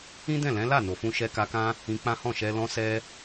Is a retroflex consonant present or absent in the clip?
absent